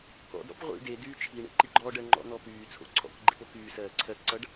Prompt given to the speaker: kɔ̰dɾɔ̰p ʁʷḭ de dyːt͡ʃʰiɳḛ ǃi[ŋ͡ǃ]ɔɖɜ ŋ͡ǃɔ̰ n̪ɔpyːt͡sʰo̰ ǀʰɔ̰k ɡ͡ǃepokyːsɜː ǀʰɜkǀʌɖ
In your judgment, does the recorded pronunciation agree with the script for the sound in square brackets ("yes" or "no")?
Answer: no